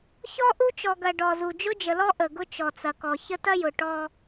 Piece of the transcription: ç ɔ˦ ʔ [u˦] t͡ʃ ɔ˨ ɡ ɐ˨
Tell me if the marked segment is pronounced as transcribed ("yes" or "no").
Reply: yes